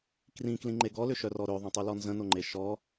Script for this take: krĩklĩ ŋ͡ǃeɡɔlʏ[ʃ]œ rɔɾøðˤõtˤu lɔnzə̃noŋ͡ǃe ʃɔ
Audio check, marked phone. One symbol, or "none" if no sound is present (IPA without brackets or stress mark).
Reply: ʃ